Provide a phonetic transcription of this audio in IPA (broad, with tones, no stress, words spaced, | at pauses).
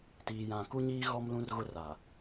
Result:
tiː˨jã˨ku˦ɲiː˦ ɣɔ˦mlũ˦rɣʊ˦ ra˨